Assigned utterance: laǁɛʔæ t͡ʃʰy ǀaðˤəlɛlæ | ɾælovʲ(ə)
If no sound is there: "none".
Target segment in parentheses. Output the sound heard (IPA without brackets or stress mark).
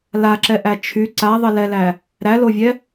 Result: ɛ